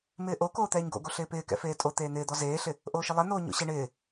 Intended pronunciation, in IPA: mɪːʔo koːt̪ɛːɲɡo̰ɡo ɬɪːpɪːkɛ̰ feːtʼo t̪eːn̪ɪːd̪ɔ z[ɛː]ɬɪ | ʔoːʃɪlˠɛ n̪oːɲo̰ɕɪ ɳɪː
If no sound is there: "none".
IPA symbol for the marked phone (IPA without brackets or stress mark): eː